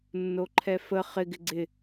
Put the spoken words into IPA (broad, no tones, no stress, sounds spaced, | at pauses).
nː o ǃʰ ɛ f ə χ ɪ ɡ ɪ ɡ͡ǀ ɪ